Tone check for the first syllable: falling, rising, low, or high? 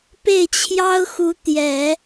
falling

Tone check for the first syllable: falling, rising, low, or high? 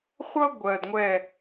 high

